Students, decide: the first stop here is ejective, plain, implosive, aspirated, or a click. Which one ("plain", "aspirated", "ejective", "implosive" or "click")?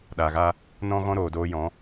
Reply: implosive